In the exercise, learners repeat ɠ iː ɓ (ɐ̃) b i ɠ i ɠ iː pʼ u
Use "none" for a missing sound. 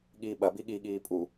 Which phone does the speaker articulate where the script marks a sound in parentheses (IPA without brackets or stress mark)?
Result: ɐ